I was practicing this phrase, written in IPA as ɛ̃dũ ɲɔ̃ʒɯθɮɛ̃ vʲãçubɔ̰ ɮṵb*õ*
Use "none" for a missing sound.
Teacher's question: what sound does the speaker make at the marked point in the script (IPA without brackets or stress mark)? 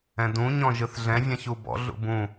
ũ